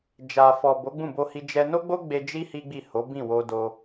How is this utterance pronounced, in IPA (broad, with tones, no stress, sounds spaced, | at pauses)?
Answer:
d͡ʒ a˨ f ɔ˨ b o˨˦ ɡ͡b ũ˦˨ b o˧ h i˧ d͡ʒ ɛ˧ n o˦ ɡ͡b o˦ ɡ͡b e˧ d͡ʒ i˦ h i˦ ɡ͡b i˦˨ h o˨˦ b ĩ˦˨ w o˧ d o˧